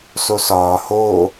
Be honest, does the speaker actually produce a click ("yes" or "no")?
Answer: no